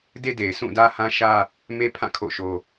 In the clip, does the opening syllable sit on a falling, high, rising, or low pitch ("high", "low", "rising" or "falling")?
high